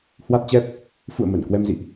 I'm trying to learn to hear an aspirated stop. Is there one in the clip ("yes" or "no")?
no